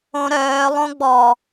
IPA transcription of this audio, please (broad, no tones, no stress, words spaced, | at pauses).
õɾœː lˠõɡ͡bɔ